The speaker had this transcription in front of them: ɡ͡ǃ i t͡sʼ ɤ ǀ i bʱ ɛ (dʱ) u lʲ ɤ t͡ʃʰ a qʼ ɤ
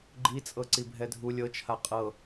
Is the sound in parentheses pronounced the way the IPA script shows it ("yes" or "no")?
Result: yes